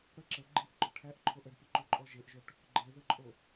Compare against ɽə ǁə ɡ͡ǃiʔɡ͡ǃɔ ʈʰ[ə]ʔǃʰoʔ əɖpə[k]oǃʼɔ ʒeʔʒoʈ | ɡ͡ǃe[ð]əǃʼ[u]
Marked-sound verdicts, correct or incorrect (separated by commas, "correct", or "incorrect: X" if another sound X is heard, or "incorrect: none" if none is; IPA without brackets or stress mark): incorrect: æ, incorrect: ǃ, correct, incorrect: o